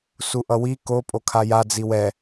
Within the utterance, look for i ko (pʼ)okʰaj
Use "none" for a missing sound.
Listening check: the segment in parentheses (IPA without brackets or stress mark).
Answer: pʼ